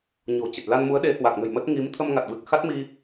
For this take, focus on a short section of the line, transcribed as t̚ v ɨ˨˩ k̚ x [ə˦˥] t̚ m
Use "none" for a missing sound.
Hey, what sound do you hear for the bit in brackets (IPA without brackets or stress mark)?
a˦˥